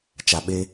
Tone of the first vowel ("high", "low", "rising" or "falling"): low